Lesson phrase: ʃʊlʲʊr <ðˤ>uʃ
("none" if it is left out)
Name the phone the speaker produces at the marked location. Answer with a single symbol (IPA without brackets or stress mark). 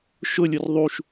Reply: ðˤ